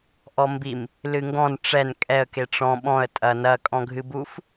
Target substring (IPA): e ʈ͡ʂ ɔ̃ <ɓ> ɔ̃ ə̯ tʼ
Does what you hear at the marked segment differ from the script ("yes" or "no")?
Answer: no